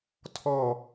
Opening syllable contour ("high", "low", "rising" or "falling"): falling